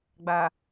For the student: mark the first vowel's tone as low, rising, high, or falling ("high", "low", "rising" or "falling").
low